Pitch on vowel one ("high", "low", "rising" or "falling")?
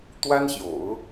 high